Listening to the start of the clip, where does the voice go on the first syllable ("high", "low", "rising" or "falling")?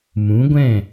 rising